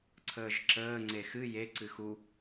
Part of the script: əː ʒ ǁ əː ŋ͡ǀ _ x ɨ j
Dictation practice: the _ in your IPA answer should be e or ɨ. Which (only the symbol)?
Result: e